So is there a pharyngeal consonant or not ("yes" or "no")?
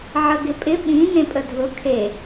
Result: yes